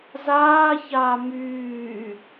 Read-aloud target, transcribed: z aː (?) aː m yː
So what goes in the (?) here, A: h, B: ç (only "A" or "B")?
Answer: B